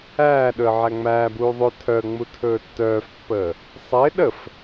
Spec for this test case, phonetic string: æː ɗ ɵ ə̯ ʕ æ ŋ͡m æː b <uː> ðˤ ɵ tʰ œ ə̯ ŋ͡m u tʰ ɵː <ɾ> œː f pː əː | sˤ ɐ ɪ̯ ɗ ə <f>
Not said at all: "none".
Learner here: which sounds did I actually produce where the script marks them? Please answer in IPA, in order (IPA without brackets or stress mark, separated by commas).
uː, tː, f